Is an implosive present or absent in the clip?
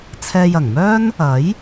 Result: absent